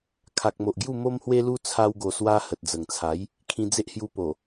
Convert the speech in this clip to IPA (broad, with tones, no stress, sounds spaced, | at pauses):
kʰ a˨ k̚ m o˨ ʔ ɡ j u˥˧ m o˦ m h w e˦ l u˦ t͡sʰ a˧ w ɡ o˨˩ s w a˧ h ə˨ t̚ d͡z ə˨˩ ŋ t͡sʰ a˨˦ j | kʰ ĩ˧ d͡z e˦ ʔ h j u˧ p o˨˩